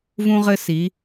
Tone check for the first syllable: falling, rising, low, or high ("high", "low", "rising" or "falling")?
high